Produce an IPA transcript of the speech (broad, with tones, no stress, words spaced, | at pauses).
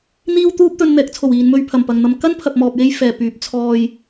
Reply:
n̪iː˥wt̪uː˥p̚ t̪ɵ˧nn̪ɛː˨˥k̚t͡sʰo˨˩wiː˨n mɵ˧ɥpʰɐ˨˩mpɐ˨ŋ n̪ɐ˨mkɐ˥npʰɐ˨p̚ mɔː˨p̚je˧j fɛː˨˩pyː˨˥p̚ t͡sʰɔː˨j